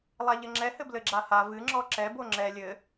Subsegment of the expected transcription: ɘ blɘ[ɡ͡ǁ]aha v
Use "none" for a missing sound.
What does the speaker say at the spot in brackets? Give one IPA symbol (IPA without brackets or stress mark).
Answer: ɡ͡ǁ